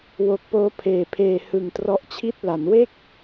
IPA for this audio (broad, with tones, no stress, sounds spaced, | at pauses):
w o˨˩ k̚ p oː˦˥ pʰ eː˨˩ pʰ eː˧ h ɯ˨˩ ŋ t r ɔ˦˥ ʔ t͡ɕʰ i˥˩ t̚ l a˩˦ n w e˥˩ k̚